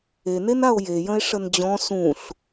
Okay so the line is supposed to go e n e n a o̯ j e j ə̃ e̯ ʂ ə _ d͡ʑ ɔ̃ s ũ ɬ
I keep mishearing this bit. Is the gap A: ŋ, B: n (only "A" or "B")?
B